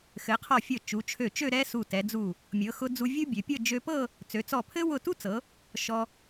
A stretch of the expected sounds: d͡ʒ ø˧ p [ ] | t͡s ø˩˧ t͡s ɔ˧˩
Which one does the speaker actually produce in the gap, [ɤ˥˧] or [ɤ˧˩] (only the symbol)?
ɤ˥˧